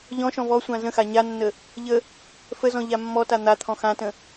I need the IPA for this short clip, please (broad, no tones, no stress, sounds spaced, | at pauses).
ʎ ɔ̃ ʃ ɔ̃ v ɔ sʷ ã z ə̃ x a ɲ a nː ə | ʎ ə | f ə z ɔ̃ ʎ a mː ɔ t a n̪ a t̪ʰ ɔ̃ x ã t ə̃